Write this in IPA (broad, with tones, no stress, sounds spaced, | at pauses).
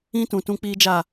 ĩ˦ t ũ˨ t ũ˦ k͡p iː˦ d͡ʒ a˦˨